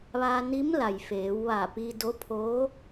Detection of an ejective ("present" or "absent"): absent